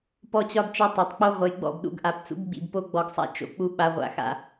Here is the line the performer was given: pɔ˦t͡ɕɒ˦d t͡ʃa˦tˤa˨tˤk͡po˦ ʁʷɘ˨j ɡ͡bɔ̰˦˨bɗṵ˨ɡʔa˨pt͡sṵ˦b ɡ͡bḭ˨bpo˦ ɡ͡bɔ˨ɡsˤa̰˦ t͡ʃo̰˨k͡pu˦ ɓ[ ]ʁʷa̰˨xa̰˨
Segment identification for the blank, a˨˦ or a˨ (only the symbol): a˨